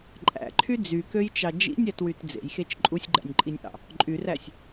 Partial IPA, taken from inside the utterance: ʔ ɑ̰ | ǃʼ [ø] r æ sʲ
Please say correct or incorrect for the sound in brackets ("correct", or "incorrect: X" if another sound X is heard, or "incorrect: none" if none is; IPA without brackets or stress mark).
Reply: incorrect: y